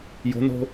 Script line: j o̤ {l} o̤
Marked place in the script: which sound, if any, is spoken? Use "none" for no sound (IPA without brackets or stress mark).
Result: n